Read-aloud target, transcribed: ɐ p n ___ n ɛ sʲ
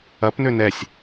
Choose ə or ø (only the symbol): ø